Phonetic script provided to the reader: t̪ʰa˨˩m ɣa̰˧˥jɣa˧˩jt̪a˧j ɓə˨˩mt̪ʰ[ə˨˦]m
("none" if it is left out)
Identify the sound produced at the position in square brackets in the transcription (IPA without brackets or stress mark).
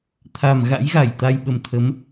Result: ə˨˦